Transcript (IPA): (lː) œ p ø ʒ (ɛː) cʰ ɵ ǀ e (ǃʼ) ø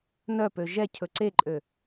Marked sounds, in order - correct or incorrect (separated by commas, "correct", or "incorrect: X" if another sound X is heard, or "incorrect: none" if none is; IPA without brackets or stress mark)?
incorrect: n, incorrect: ɛ, correct